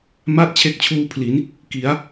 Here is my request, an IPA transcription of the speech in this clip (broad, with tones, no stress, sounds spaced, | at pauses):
m a˥˩ t̚ t͡ɕʰ e˦˥ k̚ t͡ɕʰ uː˦˥ pʰ l i˩˦ n | k i˩˦ a̯